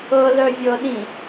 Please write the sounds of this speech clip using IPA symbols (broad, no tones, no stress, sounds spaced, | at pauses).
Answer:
ɤ l œ vʲ ɤ ɗ ĩ